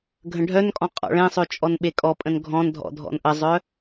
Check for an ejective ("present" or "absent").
present